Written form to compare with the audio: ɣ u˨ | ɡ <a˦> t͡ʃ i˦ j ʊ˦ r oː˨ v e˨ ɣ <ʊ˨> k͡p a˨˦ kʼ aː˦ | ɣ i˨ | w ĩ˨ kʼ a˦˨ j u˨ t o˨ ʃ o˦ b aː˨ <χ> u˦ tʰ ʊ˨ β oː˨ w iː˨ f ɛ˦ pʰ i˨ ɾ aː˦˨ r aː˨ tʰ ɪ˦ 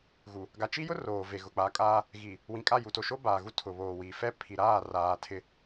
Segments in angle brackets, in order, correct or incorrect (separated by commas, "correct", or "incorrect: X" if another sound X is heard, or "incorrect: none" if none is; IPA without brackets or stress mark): incorrect: a˨, correct, incorrect: ɣ